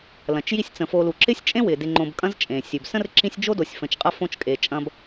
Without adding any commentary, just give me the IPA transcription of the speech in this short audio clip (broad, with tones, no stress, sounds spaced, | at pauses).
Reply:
l ɐ̃˩ t͡ʃ j i˦ sʲ t͡s ə̃˩ f o˨ l u˩ ǁ ɪ˥ sʲ t͡ʃʼ ẽ˥ w ɪ˩ d ɪ˨ ŋ͡ǃ õ˨ b kʼ ɐ̃˥ z t͡ʃʼ ẽ˩ sʲ ʉ˩ b s ə̃˥ r ǁ ĩ˦ sʲ d͡ʒ o˥ d o˨ sʲ f ə̃˨ t͡ʃ qʼ ɐ˥ f õ˦ t͡ʃ kʼ e˨ t͡ʃʼ ɐ̃˦ b